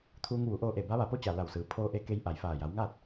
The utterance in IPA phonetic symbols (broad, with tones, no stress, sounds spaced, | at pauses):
t̪ʰ uː˧ ŋ ʋ u˩˧ ʔ oː˧ ʔ e˧˩ b a˧˥ ʋ a˧˩ p o˥˨ t͡ɕ a˧˩ l a˧˩ w s ɯː˩ pʰ oː˧ ʔ e˧ k e˧ j ʔ a˧˩ j f aː˧˩ j a˩˧ w ŋ aː˥˨ t̚